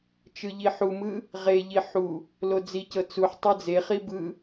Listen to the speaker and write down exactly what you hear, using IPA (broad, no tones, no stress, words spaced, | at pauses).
t͡ʃɯʎiħumɯ | ʁeʎi ħu | lod͡zicɤ t͡suħ tˤɯd͡zeχi bɯ